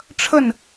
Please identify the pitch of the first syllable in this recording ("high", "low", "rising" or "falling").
falling